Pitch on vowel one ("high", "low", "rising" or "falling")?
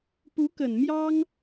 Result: rising